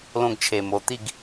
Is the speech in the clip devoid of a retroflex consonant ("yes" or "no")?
yes